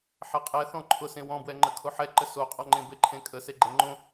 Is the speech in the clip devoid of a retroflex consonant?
yes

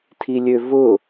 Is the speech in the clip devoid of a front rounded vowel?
no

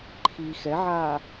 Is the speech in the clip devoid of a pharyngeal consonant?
no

